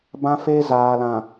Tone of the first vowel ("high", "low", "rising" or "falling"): high